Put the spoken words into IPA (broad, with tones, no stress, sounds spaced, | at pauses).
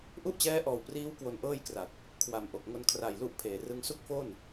ʔ u˥˩ ʔ t͡ɕ ɛː˦˥ ʔ ɔː˨˩ w p r iː˦˥ w k w o˧ n ʔ ɤː˥˩ j k r a˨˩ t̚ | kʰ w a˨˩ m ʔ o˨˩ k̚ ŋ o˧ n kʰ r a˨˩ j l u˦˥ ʔ pʰ eː˨˩ r ɯ˥˩ ŋ s u˥˩ k̚ f o˥˩ n